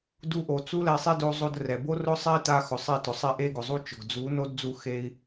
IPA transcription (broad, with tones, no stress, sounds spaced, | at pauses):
d u˧ ʔ o˨ t͡s u˦ l ɛ˧ sˤ e˦ d o˧ zˤ o˧ d r ɛ˨ b o˦ r ʊ˦ sˤ ɛ˦ i̯ t a˧ x ʊ˨ sˤ e˦˨ t ʊ˨ sˤ ɛ˦ ʔ e˦ ɡ ʊ˨ zˤ u˦ t͡ʃ ʊ˨ ɡ d͡z u˨˦ n o˦ d d͡z u˧ x e˧ i̯